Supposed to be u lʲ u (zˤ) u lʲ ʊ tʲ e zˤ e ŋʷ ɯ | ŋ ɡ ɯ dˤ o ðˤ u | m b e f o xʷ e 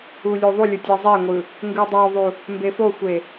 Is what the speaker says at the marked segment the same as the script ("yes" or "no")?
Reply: no